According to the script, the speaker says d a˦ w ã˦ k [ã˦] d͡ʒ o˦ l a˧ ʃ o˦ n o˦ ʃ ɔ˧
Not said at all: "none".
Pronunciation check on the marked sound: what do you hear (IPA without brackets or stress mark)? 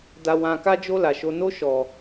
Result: a˦